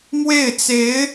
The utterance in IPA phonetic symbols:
m w e˥˩ ɪ̯ t͡s e˧˥ ɪ̯

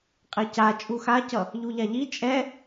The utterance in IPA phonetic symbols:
qʼ e c a t͡ʃʼ u x a c ʌ | ʎ u ʎ a ʎ i t͡ʃʼ ɛ

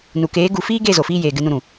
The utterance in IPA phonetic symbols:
n u˨ k eː˨˦ ɡ u˨ f iː˦ ɡ e˦˨ z o˨ f iː˧ j eː˨ ɡ ɨ˧ n ũ˧ ɾ ũ˨

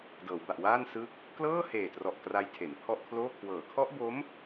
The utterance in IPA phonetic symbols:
d ɤː˩˦ w b a˨˩ ʔ w aː˥˩ n s ɯ˦˥ k̚ | k l ɤː˥˩ h eː˨˩ t r ɔ˨˩ ʔ k r a˦˥ j tʰ e˩˦ n pʰ ɔ˥˩ ʔ kʰ l oː˥˩ kʰ w ɤː˩˦ kʰ ɔ˦˥ ʔ b o˦˥ m

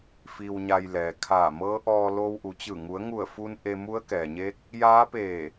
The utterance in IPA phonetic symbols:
f i˧ w ɲ a˧ j l ɛː˩ kʰ aː˧˩ m ɤː˧˥ ʔ ɔː˧ l oː˧ w ʔ u˩˧ t͡ɕ ɯː˧˩ ŋ u˩˧ ə̯ ŋ u˧˩ ə̯ f u˧ n ʔ e˧ m u˧˥ ə̯ k ɛː˩ ɲ eː˧˥ k̚ | j aː˧˥ p eː˧˩

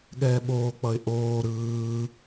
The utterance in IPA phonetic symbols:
ɠ ɛː ɓ oː k͡p ʌ ɪ̯ ʔ oː ɾ ɯː

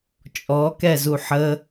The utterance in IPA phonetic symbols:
t͡ʃʼ ɔ k ɛ z u ħ ə

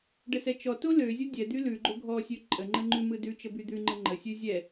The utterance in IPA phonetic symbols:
ɖ ə s ɛ t͡ʃ ɔ t o l ø zʲ o dʲ ɛ d̪ y l ʉ ɡ͡ǃ o ɡʱ ɔ sʲ ø ǃʼ ə ŋ͡ǃ ə ŋ͡ǃ ʉ m ɯ d ʉ t͡ʃ ə b y d̪ ʉ ŋ͡ǃ ə ŋ͡ǃ ə sʲ ʉ zʲ ɛ

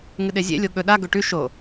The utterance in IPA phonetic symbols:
ŋ ɨ ɗ e zʲ ḛ lʲ o ɠ ɵ ɗ a ɡ ɵ ʈ ʉ ʃ o

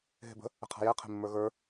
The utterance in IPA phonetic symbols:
ɦ e̤ b ə̤ | ə̤ qʰ a̤ j ɛ qʰ e̤ mː ə˞ ɣ ə˞

